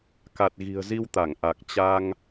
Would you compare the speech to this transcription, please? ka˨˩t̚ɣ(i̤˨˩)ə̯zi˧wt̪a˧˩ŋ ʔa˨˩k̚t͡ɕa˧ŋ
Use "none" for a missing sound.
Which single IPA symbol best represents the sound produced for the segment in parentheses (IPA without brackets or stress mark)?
i̤˨˩